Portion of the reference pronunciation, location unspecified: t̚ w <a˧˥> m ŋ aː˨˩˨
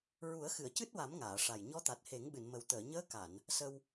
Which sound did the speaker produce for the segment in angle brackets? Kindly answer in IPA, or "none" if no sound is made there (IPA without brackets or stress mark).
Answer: a˨˩˦